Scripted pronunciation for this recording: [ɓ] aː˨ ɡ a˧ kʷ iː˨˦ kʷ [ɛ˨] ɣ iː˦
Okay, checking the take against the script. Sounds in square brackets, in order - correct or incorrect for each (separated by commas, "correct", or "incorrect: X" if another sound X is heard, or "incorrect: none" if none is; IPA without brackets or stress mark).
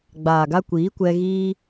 incorrect: ɡ͡b, incorrect: ɛ˧